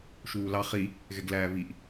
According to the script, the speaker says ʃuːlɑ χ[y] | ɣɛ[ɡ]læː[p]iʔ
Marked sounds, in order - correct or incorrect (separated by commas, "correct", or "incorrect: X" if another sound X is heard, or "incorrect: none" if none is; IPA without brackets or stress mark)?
incorrect: i, correct, incorrect: β